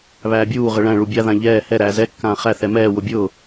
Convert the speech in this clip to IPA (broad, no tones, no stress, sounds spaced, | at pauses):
β æː bʲ uː ʁ ə ɭ æ̃ ɭ u bʲ a ð ã ʎ ɛː h ɛ ɾ æː z ɛ kː ãː χ æ θ ɛ m ɛː w ʊ bʲ ʊː